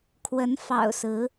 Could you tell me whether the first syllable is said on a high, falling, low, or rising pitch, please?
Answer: rising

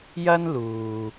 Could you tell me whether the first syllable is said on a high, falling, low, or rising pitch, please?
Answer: high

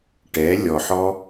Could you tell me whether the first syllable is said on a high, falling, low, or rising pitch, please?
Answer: rising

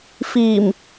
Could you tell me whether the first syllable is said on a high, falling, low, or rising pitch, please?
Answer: low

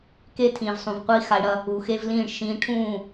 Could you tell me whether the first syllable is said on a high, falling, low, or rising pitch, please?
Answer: high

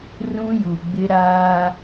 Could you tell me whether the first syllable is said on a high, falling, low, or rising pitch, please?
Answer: high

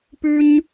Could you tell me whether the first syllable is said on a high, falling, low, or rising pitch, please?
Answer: high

